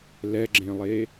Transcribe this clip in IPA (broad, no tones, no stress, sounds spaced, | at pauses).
l ɛ ɡ͡ǁ ẽ lˠ e